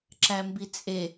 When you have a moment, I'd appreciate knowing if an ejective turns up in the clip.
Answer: yes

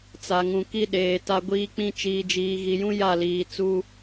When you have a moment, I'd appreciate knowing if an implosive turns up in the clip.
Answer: yes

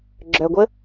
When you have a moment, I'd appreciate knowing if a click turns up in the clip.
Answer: yes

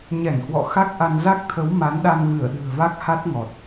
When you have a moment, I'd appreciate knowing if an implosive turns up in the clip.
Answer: yes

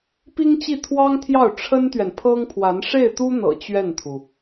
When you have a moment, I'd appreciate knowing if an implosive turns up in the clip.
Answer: no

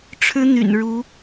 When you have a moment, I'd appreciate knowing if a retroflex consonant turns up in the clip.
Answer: yes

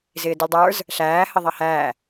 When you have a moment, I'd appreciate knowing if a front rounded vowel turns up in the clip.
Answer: no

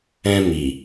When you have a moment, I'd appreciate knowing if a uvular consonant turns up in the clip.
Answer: no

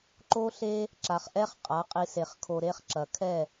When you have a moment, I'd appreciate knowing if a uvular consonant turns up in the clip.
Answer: yes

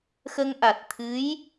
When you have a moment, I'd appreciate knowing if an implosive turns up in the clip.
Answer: no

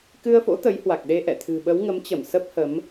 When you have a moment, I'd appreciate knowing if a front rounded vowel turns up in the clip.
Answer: no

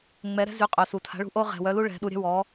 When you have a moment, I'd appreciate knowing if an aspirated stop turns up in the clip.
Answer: yes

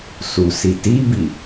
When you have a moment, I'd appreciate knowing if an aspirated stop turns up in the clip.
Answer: no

